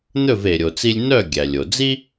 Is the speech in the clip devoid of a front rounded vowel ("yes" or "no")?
no